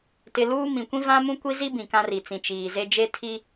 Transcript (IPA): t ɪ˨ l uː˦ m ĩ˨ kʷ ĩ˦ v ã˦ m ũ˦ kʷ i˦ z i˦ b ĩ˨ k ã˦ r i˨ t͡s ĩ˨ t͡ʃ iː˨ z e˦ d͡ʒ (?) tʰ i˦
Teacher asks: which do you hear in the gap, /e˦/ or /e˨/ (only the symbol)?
e˦